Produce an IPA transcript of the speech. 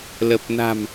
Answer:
l ə˨˩ p̚ n a̤˨˩ m

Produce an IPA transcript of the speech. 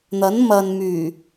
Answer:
n̪ ɐ˨˥ n m ɐ˨ n m yː˨˩

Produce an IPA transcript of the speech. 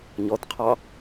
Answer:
ɲ ɔ t qʰ ɑ

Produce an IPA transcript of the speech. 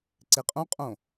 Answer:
ǀ e qʼ õ qʼ õ

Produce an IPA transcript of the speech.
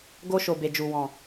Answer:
ɡ o˧ ʃ o˨ b e˨ d͡ʒ u˨ w ɔ̃˨

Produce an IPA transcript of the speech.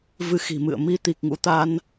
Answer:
v ɨ˨˦ x i̤˨˩ m ɨ̰˧˨ ə̯ m i˧ t̪ i˨˩ k̚ ŋ ṵ˧˥ t̪ a˧ n

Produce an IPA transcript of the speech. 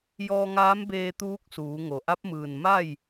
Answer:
j ɔː˧ ŋ aː˧˥ m b eː˧ t̪ uː˧˥ k̚ s uː˩˧ ŋ o˩ ʔ a˧˥ p̚ m ɯː˧˩ n m a˥˨ j

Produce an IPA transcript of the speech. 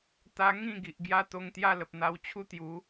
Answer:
t̪ a˧ ŋ ĩ˥˧ ɡ i˨ ʔ ɡ j a˦ t̪ o˧ ŋ t̪ j a˦ l ə˨ p̚ n̪ a˧ w t͡ɕʰ u˦ t̪ j u˨˦

